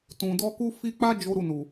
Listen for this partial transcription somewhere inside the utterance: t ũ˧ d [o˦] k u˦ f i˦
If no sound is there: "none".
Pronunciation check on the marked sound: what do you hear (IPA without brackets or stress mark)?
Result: ɔ˦